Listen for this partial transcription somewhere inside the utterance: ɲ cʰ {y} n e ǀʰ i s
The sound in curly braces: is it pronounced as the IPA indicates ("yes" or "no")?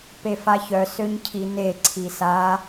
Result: no